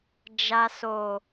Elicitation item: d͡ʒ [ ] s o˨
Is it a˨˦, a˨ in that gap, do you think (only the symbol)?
a˨